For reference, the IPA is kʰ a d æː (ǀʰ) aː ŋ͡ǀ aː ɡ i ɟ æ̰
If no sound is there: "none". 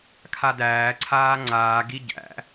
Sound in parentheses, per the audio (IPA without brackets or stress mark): ǀʰ